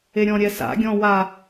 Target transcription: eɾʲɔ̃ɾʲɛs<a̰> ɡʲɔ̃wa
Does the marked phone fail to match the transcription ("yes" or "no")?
no